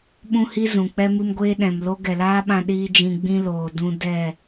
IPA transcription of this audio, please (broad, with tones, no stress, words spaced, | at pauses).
ɓũ˦hi˦zũ˨k͡pɛ˦ mɨ˦mɡʷeː˦ɗɛ̃˨mlo˦ ɡɛ˨laː˦ɓã˧ ɗiː˦d͡ʒĩ˧ ɡ͡bĩ˦loː˨ dũ˧ dɛ˦˨